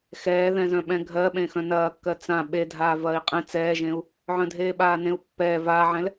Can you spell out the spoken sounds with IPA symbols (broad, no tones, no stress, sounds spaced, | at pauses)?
x ɛː ð ɛ̃ z œ̃ ɓ ɛ̃ ɡʱ ɜ ɓ ẽ x œ̃ n ɐː kː ɜ t͡s ã ɓ e dʱ aː v ɐː i̯ qʼ ẽ t͡s ɛː ʒ ẽ u̯ | ʕ œ̃ dʱ eː ɓ aː n ẽ u̯ pː ɛː v aː ʕ ɛ̃ l